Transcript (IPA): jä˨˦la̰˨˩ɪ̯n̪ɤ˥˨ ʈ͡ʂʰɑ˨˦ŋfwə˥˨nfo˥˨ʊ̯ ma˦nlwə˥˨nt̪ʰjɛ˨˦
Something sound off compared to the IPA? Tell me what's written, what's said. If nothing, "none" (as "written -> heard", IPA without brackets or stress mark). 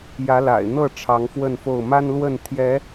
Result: none